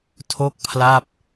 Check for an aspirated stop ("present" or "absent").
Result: present